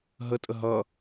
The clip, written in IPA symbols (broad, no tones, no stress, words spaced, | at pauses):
ɦətʼə ɦʌ